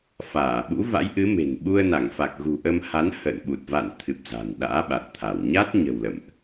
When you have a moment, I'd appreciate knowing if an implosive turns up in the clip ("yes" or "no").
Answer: yes